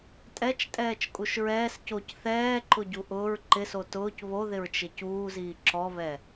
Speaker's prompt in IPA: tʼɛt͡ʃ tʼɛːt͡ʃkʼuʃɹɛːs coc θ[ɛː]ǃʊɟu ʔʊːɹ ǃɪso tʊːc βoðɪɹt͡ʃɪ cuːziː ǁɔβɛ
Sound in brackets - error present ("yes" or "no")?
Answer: no